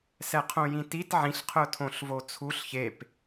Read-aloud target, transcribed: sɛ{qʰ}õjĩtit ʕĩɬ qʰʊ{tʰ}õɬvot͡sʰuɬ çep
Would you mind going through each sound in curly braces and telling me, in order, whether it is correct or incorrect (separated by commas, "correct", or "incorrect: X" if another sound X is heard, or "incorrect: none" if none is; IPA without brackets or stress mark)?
correct, correct